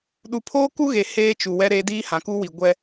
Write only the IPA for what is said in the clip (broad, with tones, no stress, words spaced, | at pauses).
ɗu˨pʰoː˦ku˦ɣe˨ heː˦t͡ʃu˨wɛ˦ ɾe˦ diː˦hã˨ku˦wi˨ ɡʷɛ˦